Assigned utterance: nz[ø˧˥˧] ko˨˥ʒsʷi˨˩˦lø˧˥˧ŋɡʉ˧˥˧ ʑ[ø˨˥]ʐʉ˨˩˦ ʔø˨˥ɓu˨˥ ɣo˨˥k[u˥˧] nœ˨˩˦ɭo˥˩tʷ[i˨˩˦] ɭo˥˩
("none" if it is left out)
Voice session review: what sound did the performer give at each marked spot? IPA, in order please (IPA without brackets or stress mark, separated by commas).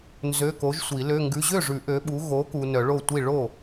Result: ø˧˥˧, ø˥˩, u˨, i˥˩